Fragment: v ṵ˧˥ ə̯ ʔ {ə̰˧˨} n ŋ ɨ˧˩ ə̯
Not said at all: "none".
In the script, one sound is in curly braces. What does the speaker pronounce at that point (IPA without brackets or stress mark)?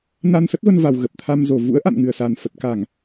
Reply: a̰˧˨